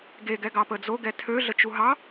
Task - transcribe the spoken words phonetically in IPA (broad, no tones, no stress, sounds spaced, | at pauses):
ɡ e ɡ ɛ ɡ ɑ p ə d͡z o ɡ ɛ tʰ ø ɮ ə t͡ʃ u ɦ ɑ